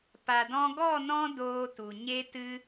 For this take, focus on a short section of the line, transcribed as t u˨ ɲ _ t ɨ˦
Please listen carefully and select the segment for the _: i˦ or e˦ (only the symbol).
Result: e˦